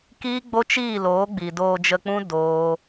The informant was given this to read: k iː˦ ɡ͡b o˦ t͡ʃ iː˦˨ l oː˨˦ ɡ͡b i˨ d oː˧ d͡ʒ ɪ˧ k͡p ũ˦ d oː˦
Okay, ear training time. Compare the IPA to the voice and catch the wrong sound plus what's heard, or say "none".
ɪ˧ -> ə˧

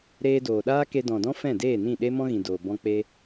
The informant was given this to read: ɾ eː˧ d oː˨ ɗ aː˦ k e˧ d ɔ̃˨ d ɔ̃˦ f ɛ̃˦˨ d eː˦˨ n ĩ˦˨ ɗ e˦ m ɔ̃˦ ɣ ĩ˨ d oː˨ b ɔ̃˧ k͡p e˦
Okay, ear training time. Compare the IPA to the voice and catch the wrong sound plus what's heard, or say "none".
none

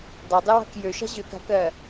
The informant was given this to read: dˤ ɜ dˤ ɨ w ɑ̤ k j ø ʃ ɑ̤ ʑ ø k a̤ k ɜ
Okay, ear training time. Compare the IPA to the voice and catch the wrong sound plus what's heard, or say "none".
none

